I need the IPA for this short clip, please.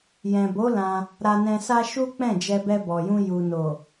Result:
j ɛ̃˨ b o˨˦ l ã˧ | ɾ a˧ n ɛ̃˧ s a˦ ʃ u˦ k͡p ɛ̃˦˨ d͡ʒ ɛ˧ b ɛ˧ b ɔ˨ j ũ˧ j u˨ n o˨

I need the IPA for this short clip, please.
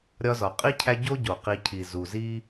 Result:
ɾʲ ɒ˦ z ɒ˩ qʼ i˥ cʰ æ˦ ɟ o˥ ɟ o˩ q i˨ cʰ i˩ z u˩ z i˥

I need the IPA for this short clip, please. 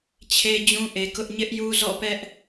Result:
t͡ɕʰ e˦ d͡ʑ ũ˦ ʔ e˨ k ʊ˦ ʔ ɲ ɪ˦ ʔ j u˦ z ɔ̰˦˨ p ɛ˦ ʔ

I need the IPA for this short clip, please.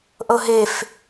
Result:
ʔ ɤ ɦ e f

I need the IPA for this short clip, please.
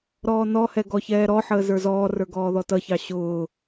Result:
ɾ ɔː n ɔ h ɛ ɡ ɔ ç ɛː ɾ ɔ ħ əː z ə˞ z ɔː r ə˞ ɡ ɔː ð ɔ t ʌ ç ɑ ɕ ʊː

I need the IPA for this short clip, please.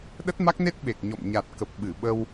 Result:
ɗ ə˦˥ t̚ m a˦˥ k̚ n e˦˥ t̚ ɓ e˨˩ k̚ ɲ ɔ̰˧˨ m ɲ a˨˩ t̚ k ə˨˩ p̚ ɓ ɨ˧˩ ɓ ə˧ w

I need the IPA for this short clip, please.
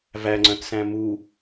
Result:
v æ ŋ͡ǀ œ̃ t s æ̃ m u

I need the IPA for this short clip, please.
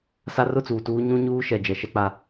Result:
s a˦ r ʊ˦ t͡s uː˨ t uː˦ ɲ ũ˦ ɲ uː˦ ʃ ɛ˨ d͡ʒ ɛ˨ ʃ ɛ˦ k͡p a˦

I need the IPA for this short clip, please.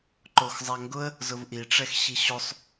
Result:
ǃ o x zˤ a ŋ ɡ ʊ ə̯ | z ʊ v ʔ i ʈ͡ʂ ɛ x ɕ i ɕ o sˤ

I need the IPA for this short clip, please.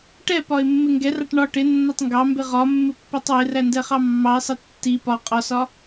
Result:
ʈ ɛ p ɒ ɪ̯ mː ɪ ŋ ɡ ɛ r ɑ ʈ ɳ ɒ ʈ ɪ nː ɒ tˤ ŋ ɡ ɑ m b ɪ ʁ ɒ mː ɪ pː ɛ tˤ w ɪ r æ n d ɛ χ ɑ mː ɑ ɪ̯ sˤ ɪ tː i p ɒ qʼ ɒ s ɒ

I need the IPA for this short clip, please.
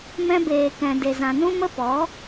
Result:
m ɛ̃˧ b eː˨ k ɛ̃˨ d e˨ z ã˨ n ũ˦ m ə˦ p ɔ˨˦

